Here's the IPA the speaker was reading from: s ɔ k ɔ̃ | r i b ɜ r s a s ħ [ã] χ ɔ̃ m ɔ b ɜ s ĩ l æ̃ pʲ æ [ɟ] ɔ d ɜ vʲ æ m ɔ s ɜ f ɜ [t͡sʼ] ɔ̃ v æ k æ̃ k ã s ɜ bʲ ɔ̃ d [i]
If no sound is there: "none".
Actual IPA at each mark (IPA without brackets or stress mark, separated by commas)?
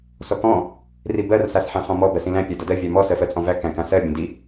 æ̃, d, t͡sʼ, i